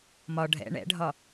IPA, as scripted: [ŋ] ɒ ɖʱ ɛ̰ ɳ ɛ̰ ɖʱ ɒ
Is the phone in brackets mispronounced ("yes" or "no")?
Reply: yes